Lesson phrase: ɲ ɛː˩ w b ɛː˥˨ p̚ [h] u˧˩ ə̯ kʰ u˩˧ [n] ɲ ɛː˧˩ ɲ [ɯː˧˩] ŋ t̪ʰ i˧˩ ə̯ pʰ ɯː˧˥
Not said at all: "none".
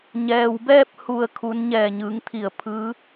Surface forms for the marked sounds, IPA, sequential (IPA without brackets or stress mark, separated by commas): h, n, ɯː˩˧